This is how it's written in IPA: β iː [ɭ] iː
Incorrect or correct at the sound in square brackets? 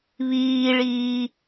correct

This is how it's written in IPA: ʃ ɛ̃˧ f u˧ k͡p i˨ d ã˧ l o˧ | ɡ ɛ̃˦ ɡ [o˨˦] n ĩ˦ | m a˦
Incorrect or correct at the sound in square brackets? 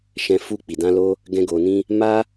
incorrect: o˧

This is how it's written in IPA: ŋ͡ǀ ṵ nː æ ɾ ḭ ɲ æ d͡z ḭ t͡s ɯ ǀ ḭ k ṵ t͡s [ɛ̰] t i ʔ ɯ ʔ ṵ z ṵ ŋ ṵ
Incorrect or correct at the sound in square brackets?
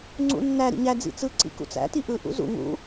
incorrect: æ̰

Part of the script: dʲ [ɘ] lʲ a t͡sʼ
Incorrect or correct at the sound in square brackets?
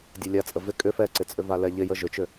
correct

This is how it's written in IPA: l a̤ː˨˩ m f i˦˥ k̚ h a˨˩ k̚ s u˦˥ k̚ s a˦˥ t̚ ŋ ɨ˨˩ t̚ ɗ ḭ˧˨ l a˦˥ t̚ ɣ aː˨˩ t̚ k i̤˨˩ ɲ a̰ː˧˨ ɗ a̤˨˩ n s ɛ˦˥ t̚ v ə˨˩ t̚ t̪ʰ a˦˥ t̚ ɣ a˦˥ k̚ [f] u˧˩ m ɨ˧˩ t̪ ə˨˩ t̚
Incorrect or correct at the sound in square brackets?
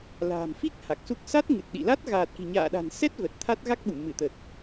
incorrect: ɓ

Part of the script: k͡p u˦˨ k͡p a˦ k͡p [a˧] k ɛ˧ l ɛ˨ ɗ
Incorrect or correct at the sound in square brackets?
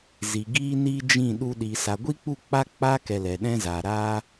incorrect: a˦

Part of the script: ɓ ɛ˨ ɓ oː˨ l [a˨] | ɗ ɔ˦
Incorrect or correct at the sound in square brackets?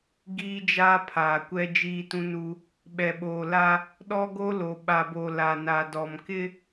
incorrect: a˦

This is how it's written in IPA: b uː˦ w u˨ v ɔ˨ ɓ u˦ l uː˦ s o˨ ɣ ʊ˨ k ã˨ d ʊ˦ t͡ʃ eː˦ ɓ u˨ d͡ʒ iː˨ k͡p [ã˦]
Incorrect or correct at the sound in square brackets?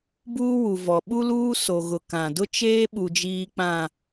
incorrect: ã˨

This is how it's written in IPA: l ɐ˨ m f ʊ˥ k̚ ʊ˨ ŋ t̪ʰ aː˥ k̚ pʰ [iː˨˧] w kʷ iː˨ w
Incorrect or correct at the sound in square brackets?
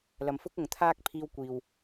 incorrect: iː˧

